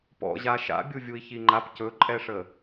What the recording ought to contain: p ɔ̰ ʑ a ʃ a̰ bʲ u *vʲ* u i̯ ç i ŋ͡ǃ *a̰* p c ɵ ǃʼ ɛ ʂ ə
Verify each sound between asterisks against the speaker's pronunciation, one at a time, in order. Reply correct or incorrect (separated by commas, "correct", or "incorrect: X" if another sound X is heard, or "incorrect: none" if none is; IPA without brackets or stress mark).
correct, incorrect: a